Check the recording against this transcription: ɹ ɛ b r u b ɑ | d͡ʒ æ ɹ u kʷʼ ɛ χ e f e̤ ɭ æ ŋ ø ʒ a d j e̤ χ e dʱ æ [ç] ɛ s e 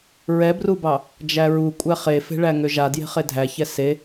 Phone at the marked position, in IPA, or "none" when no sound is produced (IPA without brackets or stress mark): ç